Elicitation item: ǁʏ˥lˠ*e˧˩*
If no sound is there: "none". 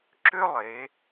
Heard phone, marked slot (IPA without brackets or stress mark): e˩˧